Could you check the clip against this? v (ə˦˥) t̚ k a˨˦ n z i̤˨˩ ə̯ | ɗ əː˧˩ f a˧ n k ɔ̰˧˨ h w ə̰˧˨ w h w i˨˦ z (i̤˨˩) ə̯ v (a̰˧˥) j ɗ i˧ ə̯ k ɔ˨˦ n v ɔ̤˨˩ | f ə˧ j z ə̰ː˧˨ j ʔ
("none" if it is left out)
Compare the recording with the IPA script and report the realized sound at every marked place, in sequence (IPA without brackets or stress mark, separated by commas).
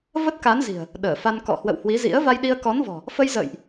ə˦˥, ḭ˧˥, a˧